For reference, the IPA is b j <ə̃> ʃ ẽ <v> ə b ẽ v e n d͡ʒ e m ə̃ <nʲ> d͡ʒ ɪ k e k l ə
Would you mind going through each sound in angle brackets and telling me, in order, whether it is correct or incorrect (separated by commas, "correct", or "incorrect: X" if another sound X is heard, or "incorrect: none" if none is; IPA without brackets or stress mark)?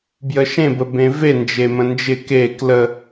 incorrect: ə, incorrect: b, incorrect: n